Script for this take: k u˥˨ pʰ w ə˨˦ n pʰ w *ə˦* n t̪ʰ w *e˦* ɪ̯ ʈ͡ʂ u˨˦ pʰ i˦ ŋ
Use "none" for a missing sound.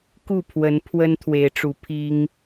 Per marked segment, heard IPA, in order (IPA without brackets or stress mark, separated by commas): ə˦, e˨˦